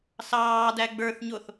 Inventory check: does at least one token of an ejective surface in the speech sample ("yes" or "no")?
no